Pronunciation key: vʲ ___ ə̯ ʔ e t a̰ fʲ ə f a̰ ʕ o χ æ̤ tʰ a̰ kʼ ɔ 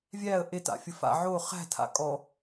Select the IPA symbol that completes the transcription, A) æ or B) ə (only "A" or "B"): A